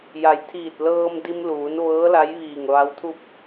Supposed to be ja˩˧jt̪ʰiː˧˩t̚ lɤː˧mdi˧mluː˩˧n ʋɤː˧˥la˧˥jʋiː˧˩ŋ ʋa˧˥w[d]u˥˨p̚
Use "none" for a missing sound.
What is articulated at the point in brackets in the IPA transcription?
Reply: t̪ʰ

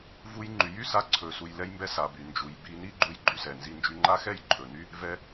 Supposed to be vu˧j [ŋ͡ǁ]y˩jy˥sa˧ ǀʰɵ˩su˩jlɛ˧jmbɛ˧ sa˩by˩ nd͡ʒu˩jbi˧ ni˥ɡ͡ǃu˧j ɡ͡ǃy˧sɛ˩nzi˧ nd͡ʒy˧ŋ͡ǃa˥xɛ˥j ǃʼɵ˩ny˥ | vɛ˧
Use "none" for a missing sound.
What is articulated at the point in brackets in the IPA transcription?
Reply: ŋ͡ǃ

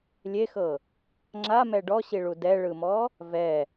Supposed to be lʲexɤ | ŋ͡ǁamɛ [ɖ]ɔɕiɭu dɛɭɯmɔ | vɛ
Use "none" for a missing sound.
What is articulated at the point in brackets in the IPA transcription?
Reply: ɖ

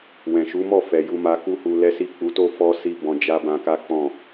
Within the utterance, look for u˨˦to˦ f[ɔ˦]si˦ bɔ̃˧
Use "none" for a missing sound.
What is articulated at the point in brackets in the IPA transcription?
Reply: ɔ˦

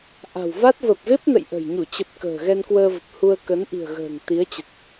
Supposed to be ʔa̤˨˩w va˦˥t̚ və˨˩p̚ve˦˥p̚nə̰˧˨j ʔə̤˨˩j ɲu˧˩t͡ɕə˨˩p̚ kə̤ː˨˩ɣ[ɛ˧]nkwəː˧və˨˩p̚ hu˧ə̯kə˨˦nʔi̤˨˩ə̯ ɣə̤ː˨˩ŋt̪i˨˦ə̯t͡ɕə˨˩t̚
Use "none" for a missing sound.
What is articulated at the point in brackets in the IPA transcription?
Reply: ɛ˧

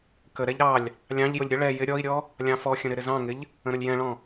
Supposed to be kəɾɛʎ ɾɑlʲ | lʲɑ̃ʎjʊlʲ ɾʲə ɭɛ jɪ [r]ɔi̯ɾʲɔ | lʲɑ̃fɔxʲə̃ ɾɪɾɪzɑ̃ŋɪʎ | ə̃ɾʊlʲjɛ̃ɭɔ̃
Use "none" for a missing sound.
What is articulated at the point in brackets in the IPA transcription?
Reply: ɾʲ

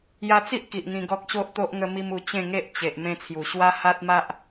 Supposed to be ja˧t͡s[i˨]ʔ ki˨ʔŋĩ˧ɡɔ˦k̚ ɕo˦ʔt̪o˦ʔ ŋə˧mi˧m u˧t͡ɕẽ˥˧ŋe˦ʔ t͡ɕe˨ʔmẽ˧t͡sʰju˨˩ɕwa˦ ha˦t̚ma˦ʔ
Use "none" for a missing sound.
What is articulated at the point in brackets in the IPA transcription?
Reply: i˦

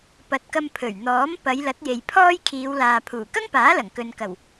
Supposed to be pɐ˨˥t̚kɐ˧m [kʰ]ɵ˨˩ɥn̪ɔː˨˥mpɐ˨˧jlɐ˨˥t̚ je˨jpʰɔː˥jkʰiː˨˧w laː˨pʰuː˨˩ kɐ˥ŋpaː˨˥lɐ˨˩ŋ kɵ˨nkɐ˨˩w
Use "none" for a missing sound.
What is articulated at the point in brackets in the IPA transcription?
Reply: pʰ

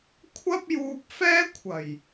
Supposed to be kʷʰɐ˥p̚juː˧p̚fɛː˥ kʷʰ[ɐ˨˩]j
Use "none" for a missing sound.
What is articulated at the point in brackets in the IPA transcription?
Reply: ɐ˨˩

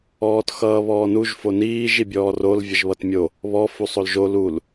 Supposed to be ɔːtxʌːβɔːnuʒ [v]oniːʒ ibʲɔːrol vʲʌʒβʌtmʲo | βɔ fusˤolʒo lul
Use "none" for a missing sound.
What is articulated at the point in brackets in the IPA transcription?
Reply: f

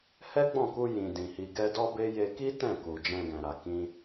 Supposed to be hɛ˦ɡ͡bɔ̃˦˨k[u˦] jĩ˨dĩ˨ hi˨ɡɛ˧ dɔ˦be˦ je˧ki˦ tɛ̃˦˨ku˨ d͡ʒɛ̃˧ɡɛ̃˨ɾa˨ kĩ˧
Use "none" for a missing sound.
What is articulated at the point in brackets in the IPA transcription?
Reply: u˧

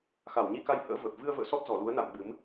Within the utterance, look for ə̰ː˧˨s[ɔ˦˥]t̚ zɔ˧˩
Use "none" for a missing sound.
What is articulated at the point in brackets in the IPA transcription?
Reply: ɔ˦˥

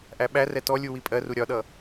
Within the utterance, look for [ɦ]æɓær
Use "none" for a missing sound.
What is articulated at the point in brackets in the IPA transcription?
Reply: ʔ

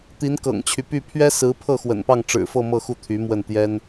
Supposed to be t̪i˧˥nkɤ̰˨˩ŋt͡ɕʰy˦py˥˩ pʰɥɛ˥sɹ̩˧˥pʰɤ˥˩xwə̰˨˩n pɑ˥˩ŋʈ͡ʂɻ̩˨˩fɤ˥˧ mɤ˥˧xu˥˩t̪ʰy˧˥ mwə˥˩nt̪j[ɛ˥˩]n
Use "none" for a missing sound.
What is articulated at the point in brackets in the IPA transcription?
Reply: ɛ˥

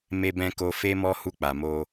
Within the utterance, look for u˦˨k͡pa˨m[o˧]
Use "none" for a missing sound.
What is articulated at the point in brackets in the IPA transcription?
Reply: o˧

